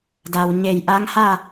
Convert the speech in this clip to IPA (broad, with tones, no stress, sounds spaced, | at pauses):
d a˩ w ɲ e˧˩ j ʔ a˧˥ ŋ h a˥˨